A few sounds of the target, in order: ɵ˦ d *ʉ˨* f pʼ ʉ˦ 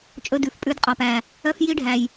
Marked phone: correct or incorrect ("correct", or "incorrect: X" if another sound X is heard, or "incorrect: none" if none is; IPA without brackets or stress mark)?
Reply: correct